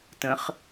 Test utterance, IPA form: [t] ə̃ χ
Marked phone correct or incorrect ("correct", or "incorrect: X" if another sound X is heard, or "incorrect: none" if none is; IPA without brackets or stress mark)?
correct